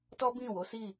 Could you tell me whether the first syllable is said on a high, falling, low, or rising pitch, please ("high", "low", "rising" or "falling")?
high